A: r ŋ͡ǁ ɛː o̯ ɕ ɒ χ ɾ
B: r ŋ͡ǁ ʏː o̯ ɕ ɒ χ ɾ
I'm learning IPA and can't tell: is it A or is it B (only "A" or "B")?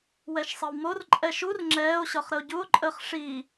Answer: A